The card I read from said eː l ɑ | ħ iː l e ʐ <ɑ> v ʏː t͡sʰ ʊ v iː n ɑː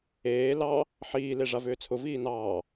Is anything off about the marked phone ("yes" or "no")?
yes